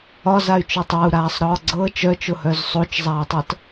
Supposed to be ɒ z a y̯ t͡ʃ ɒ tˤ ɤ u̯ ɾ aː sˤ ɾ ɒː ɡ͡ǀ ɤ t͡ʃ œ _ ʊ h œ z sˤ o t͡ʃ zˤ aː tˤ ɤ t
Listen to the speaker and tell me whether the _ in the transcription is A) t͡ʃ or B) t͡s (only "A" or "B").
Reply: A